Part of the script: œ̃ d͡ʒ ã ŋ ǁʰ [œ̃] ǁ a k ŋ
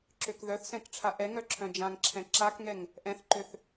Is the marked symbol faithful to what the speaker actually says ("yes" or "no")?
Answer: no